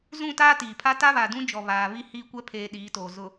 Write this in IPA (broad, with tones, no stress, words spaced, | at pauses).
zũ˦˨taː˦tiː˨pʰa˦ ta˦βa˨dũ˦d͡ʒɔ˨ βaː˨ βi˦hiː˦kʷɛ˦ pʰeː˦ɗiː˨˦toː˨ zʊ˨